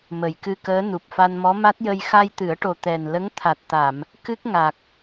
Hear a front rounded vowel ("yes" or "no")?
no